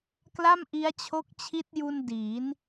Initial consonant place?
velar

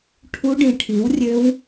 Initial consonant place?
retroflex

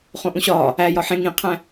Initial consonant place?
uvular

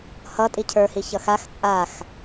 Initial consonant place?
glottal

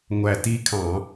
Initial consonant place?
velar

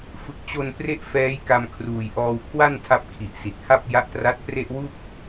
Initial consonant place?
labial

